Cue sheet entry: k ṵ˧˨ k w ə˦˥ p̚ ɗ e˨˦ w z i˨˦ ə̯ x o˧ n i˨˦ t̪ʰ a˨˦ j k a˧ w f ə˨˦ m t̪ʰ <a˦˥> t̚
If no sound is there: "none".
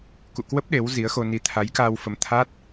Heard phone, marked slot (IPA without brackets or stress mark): a˦˥